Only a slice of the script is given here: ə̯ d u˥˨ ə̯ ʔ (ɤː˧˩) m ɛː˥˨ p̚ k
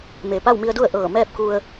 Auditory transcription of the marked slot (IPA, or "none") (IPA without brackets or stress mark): ɤː˧˩